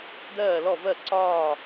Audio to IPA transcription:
dɜː˥˨lɔ˥˨ vɜ˥˨ǀɒː˥˨

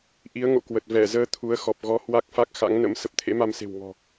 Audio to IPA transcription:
ʔi˨˦ə̯ ŋo̰˧˨kwə˨˩t̚ vɛ˧˩zəː˧ t̪ʰu˨˦ə̯xɔ˨˩p̚ ɣɔ˨˦ hwa˦˥k̚fa˦˥k̚ xa̰˧˥ŋnə̰˧˥m sə˨˩p̚t̪ʰḛ˧˥ma˧mse̤˨˩w ŋɔ̤˨˩

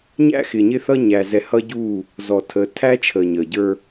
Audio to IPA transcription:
ɲæ̰˦xɪː˨ɲɪː˦θʌ˦ ɲæ˨ zɛ˨hʌ˦ɟuː˦˨ | zɔ˨tʰəː˨ tʰæ˦t͡ʃʰəː˨ɲəː˨ɟə˞˦

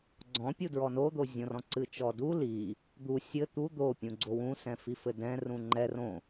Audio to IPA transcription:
ɡ͡ǀɔ̃pʲudɹɔ nod̪ozʲõrɔ̃ ǀɨt͡ʃɔdu li | d̪u sʲɘ t̪u d̪opʲũ ɡ͡ǀowũsɛ̃ fifɘdɛ̃ rũŋ͡ǃɛ rõ

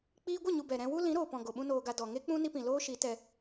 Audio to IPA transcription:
k͡piː˧ɡʷə˦˨ɲu˨ bɛ˨ɾɛ̃˧wu˦ lĩ˨˦ɾoː˨pɔ̃˨ ɡo˨ɓũ˦noː˧ɡa˧ dɔ˨ŋe˦k͡pũ˦ ni˦pĩ˨ loː˦ʃi˨˦tɛ˧

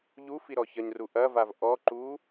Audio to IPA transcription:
ʎu fiɾɔçɐɲru ʔɐvav ʔɔǃu

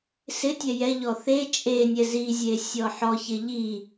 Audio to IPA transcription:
sɪtʲɛ jɛʎɔ θe t͡ʃʼenʲɛ zizʲe sʲɔħɔçɪ ʎi

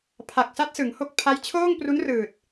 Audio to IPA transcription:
pʰa˨˩k̚sa˦˥t̚ sɯ˩˦ŋho˥˩k̚ pʰa˦˥jt͡ɕʰoː˥˩ŋpru˦˥nrɯː˨˩t̚

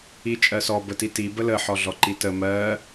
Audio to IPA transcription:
it͡ʃʼɜsɔ bətiti bələ ħɔɮɔǃitə mɜ

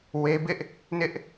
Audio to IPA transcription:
we˦ bɪ˦ʔ | nɪ˦ʔ

